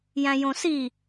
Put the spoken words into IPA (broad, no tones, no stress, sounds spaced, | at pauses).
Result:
j æ̃ j õ s i